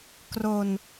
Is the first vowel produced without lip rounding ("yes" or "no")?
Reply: no